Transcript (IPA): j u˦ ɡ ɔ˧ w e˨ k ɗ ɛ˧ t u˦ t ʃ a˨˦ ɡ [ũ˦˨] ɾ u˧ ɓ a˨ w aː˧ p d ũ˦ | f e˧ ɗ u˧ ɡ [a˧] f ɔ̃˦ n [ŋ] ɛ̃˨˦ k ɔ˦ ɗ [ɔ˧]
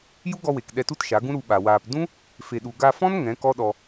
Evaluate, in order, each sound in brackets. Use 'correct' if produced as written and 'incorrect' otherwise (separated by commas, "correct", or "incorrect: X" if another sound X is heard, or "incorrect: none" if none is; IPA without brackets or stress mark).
incorrect: ũ˦, correct, correct, correct